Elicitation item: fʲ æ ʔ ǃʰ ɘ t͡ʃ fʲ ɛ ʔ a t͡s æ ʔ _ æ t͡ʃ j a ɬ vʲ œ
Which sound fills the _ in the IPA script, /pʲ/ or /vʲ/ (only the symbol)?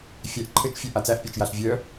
pʲ